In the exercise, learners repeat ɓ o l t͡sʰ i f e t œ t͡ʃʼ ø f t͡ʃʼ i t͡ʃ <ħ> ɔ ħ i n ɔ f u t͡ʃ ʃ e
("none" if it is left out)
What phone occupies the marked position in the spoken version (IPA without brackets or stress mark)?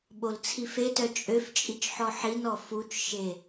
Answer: ħ